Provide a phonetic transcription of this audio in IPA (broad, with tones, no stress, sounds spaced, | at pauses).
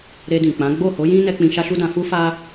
ɾ e˧ d ĩ˨ k͡p ã˨˦ ɡ͡b o˦˨ h o˨˦ j ĩ˦ n ɛ˧ k͡p ĩ˧ ʃ a˦ ʃ u˦ d ã˧ f u˦ f a˦